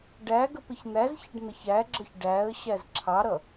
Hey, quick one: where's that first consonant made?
retroflex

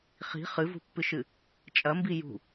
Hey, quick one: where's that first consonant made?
uvula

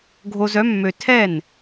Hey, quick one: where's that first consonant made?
velum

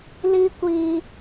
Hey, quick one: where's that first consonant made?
tongue tip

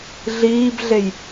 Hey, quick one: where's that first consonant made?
tongue tip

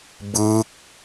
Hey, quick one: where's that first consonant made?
lips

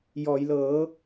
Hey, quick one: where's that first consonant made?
palate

